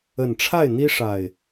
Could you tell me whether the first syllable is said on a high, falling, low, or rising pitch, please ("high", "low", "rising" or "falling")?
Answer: low